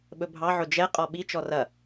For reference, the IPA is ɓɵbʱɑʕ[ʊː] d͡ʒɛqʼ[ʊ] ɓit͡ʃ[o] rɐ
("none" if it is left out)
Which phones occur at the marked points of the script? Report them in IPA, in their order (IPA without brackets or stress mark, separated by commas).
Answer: ʊ, ɔ, ɔ